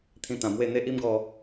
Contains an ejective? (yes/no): no